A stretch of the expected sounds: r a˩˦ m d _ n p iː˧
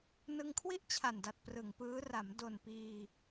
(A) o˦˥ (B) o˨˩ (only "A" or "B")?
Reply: B